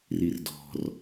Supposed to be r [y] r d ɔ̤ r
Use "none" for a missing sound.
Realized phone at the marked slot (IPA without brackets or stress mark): i